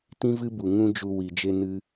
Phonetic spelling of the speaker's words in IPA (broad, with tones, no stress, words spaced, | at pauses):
tĩ˦vɨ˦bu˨ ŋũ˦d͡ʒu˧ wi˨d͡ʒe˧ nɨ˦